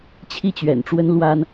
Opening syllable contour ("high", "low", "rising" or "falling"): falling